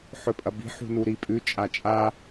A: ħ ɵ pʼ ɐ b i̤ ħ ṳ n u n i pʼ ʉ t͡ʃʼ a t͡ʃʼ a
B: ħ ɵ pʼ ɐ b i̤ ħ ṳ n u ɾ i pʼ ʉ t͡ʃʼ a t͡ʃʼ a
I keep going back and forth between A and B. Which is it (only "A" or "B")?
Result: B